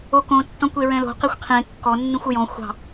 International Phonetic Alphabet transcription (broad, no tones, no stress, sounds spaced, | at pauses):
o k õ tː ɔ̃ kʷ e ɹ ɛ̃ l o̤ q e xʷ qʰ ẽ kː ɔ nː ũ xʷ o j ɔ̃ xʷ ɑ̤